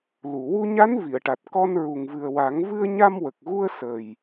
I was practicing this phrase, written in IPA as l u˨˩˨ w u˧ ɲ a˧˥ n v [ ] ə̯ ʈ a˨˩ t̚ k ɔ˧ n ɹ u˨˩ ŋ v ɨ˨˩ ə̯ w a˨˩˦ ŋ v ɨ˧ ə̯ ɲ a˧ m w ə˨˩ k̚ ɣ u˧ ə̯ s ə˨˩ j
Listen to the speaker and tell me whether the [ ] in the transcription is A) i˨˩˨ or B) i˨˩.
A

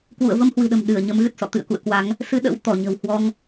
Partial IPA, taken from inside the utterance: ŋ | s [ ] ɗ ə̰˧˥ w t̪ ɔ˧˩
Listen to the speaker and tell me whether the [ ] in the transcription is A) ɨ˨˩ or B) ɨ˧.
B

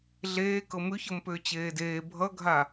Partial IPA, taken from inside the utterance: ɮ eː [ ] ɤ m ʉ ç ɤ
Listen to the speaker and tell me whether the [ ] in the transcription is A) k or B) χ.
A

